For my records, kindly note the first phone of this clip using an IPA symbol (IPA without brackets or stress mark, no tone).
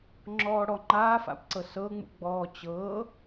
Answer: ŋ͡ǁ